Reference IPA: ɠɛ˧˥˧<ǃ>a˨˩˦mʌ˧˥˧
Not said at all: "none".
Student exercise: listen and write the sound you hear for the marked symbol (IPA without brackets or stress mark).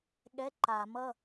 ǃ